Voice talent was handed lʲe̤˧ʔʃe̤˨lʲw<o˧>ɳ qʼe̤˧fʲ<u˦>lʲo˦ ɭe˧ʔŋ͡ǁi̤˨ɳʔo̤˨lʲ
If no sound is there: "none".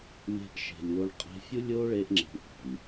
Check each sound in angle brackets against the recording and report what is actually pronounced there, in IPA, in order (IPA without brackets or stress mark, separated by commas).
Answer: o˧, u˦